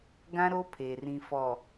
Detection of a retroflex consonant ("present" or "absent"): absent